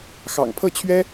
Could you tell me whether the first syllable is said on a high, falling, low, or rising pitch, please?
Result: low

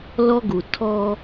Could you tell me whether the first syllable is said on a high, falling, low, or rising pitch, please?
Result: high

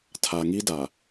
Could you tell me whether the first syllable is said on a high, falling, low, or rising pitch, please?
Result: low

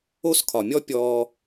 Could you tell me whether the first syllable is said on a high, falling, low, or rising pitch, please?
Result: falling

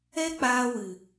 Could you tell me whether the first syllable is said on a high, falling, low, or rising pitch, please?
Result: high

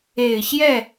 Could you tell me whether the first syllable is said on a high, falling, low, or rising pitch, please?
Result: low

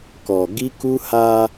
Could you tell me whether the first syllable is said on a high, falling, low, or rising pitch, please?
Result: low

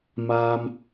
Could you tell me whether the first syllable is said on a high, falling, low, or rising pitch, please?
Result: high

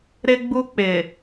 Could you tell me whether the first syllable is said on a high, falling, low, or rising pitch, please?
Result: high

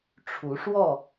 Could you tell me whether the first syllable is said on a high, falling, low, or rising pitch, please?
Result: rising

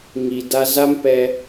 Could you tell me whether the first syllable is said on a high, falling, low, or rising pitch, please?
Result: low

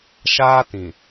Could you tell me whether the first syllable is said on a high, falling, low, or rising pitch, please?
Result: high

